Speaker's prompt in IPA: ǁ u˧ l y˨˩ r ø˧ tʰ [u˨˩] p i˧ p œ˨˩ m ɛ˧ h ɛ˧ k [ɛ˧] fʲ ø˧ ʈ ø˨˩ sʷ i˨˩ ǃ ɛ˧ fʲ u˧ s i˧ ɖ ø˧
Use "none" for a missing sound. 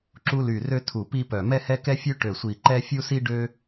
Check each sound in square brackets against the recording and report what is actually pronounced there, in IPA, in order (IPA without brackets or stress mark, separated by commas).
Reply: u˨˩, ɛ˧